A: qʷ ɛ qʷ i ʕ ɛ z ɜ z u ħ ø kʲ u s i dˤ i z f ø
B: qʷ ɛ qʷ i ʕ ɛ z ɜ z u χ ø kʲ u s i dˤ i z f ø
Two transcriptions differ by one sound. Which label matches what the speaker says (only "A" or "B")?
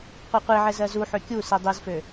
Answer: A